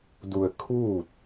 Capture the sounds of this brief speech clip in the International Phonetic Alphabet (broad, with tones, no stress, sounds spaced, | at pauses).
d u˧ ə̯ kʰ uː˥˨ t̚